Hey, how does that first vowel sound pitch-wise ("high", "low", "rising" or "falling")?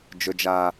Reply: high